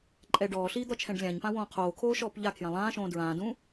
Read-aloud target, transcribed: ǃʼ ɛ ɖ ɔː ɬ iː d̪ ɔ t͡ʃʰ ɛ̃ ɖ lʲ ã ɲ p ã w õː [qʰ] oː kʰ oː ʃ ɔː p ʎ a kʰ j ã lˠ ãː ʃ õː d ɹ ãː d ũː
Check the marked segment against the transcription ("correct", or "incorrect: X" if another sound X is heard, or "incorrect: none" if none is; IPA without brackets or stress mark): correct